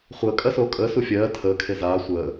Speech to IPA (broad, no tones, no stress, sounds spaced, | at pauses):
χʷ əː kʼ ɜ s oː kʼ əː s u fʲ ɜː tʰ əː kʰ e z aː sʷ əː